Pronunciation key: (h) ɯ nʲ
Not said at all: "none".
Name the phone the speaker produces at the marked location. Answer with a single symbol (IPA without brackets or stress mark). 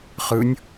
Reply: χ